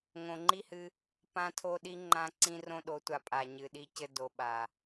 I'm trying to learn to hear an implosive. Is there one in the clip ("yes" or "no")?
yes